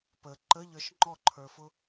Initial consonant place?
labial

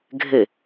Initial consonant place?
velar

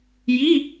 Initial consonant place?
palatal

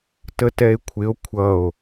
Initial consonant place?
alveolar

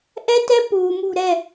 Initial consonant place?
glottal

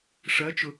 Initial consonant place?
retroflex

